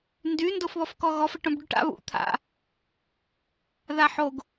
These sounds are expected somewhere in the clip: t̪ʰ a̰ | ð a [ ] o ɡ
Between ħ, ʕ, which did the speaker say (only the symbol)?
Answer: ħ